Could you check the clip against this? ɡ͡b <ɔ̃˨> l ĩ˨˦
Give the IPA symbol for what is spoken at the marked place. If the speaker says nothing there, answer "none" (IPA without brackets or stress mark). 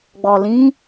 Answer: ɔ˨